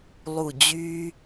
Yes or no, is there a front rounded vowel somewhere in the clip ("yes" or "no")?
yes